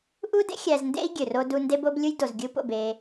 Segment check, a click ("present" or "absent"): absent